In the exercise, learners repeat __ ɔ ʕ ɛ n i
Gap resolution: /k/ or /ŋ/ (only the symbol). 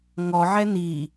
ŋ